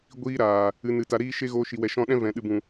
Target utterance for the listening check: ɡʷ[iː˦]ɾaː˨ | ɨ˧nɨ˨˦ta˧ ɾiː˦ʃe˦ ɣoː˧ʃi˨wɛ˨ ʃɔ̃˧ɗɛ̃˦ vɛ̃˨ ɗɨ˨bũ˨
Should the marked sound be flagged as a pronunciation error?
no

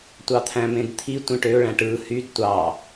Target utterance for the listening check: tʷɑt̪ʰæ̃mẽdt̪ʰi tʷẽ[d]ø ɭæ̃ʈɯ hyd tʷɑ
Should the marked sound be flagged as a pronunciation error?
yes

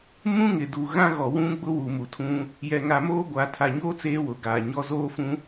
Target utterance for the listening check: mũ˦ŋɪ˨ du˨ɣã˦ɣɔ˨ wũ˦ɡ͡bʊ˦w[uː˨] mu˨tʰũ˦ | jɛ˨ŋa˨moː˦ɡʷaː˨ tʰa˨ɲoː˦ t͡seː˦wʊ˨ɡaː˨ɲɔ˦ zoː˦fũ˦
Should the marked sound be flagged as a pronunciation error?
yes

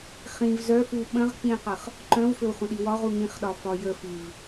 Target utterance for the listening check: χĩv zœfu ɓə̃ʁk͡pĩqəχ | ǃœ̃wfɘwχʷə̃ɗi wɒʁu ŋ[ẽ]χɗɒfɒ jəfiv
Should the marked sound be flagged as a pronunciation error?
yes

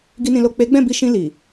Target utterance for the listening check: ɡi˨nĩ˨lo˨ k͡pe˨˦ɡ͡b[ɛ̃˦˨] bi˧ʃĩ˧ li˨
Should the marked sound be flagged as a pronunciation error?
no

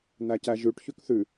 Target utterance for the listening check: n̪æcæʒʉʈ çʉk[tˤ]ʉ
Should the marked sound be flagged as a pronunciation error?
yes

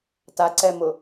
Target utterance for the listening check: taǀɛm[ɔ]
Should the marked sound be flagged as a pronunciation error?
yes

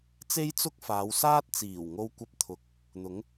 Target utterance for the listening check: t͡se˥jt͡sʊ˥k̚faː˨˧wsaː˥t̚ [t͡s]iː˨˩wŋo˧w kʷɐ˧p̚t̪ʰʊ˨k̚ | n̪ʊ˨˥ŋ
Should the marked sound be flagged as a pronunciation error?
no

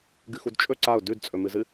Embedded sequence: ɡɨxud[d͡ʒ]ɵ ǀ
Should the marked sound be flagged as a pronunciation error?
yes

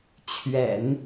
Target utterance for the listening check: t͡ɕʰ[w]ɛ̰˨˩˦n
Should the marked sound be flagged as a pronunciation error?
yes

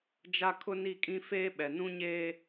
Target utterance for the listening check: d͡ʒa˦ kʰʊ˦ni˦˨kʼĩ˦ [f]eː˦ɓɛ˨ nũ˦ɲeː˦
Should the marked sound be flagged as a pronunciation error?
no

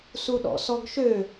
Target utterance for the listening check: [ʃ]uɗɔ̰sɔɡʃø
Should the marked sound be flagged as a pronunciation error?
yes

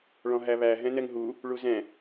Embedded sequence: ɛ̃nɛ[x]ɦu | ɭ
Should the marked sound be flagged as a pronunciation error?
yes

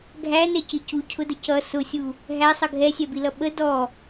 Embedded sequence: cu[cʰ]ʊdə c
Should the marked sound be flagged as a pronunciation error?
no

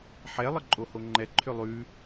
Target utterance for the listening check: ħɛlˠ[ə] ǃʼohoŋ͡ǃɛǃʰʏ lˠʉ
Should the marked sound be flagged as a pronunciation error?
no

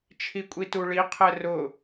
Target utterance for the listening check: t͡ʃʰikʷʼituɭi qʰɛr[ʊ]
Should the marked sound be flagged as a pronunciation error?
no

